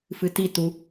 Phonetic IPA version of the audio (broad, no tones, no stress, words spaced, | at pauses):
fɨti tu